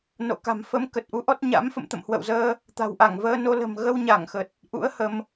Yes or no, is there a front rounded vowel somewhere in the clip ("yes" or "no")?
no